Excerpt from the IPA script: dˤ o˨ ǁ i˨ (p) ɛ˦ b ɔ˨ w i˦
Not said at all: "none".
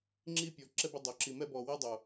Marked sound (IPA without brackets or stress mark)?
m